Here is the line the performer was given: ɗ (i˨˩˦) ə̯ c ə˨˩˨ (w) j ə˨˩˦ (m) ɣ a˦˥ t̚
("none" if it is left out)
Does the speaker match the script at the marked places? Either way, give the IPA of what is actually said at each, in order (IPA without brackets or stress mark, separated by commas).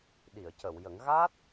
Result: i˨˩˨, w, ŋ